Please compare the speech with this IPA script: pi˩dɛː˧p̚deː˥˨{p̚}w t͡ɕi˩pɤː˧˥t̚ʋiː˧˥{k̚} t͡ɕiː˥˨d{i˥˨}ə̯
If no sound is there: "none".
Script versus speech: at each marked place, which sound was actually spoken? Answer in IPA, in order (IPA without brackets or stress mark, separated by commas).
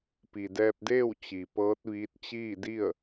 none, t̚, i˥˨